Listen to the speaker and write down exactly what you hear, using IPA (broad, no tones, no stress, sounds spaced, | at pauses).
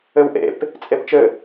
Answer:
ɘ w ʔ ḛ p | t͡sʼ e p t͡ʃ ɘ